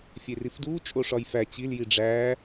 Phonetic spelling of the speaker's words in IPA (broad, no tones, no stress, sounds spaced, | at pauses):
fʲ e r i f d uː t͡ʃʼ o ʂ ɒ j f æ t͡ɕ i l j i ɖ͡ʐ æː